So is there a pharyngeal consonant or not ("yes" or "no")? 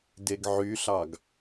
yes